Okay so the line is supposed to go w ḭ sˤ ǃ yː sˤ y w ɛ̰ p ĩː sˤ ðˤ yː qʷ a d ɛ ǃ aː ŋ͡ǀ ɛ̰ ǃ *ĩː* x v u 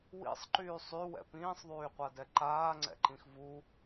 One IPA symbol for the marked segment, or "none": ĩ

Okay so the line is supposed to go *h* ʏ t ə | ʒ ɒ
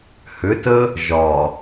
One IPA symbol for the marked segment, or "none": h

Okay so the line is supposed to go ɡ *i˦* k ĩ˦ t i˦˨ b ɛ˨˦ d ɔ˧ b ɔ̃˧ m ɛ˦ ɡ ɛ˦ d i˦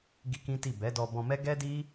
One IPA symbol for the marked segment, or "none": i˦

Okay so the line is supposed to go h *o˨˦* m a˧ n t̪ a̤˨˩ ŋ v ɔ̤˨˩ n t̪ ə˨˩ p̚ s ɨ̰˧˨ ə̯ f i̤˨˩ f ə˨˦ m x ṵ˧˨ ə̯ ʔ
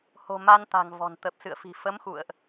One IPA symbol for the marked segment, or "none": o̤˨˩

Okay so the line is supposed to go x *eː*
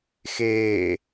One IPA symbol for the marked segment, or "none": eː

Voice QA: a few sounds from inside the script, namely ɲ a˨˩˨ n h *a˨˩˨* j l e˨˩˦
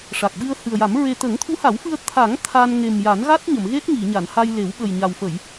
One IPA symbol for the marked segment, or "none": a˧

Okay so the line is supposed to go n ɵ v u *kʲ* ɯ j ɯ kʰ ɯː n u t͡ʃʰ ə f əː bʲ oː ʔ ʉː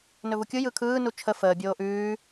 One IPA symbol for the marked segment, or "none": kʲ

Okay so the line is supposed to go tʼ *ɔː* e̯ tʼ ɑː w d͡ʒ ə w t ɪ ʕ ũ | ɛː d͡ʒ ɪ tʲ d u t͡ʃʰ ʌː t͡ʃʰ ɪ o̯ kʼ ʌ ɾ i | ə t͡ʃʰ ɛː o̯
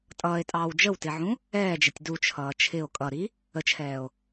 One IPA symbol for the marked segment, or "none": ʌː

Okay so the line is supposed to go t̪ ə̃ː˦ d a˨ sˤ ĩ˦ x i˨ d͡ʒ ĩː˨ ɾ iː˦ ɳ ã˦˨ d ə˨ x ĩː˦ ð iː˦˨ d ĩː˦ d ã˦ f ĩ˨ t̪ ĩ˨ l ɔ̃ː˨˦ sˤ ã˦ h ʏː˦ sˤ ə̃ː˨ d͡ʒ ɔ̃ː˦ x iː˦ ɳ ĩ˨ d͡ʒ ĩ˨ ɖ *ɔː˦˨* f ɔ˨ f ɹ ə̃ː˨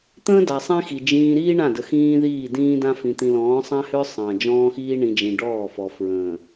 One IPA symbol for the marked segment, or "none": ɔː˦˨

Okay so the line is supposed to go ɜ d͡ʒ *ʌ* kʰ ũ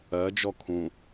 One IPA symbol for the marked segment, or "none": ɔ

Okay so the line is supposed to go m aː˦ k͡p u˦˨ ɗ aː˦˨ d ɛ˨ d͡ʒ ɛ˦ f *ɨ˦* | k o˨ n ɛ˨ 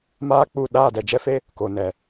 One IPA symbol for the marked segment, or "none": e˦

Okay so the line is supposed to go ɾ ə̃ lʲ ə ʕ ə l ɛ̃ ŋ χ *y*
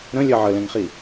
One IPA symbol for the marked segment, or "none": i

